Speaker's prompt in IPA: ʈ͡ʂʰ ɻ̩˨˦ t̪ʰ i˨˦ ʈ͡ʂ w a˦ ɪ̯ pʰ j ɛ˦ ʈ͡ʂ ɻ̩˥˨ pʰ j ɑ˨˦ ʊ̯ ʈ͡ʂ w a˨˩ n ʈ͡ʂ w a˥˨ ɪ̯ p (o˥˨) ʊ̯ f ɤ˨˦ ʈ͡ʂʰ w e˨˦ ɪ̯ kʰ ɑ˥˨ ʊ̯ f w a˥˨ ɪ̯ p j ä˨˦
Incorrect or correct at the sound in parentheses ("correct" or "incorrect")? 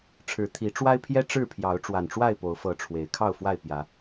incorrect